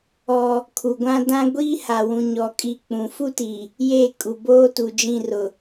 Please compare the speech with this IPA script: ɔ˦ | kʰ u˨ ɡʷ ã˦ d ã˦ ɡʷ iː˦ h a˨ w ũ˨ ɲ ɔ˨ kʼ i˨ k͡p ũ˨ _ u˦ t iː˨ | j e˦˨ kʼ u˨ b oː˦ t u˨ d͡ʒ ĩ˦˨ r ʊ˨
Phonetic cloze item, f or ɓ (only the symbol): f